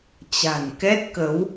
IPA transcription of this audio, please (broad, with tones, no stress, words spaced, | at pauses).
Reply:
t͡ɕa̤˨˩n kɛ˦˥t̚kə˨˦w